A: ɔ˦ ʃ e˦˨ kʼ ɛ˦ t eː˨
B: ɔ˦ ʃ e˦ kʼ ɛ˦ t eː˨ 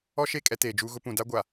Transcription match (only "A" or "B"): A